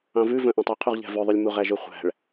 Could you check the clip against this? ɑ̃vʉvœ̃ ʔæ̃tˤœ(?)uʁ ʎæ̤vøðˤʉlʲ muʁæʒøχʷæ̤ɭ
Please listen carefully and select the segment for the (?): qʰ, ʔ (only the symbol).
qʰ